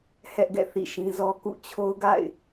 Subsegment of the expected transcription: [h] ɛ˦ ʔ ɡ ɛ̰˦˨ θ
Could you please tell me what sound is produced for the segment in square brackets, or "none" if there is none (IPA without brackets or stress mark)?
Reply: h